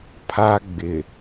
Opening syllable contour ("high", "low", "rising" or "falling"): high